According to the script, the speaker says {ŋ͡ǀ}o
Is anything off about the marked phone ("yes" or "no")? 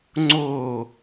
no